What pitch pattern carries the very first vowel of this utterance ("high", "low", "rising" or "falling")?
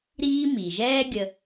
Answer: high